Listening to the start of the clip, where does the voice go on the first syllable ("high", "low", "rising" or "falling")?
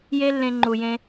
high